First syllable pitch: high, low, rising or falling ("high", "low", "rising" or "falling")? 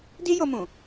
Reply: high